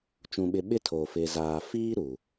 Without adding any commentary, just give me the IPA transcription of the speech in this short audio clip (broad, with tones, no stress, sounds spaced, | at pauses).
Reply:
t͡ʃ ũ˨ ɓ ɪ˨ ɓ ɪ˦ tʰ o˨ f ɪ˨ z aː˨ f iː˦ ɾ u˨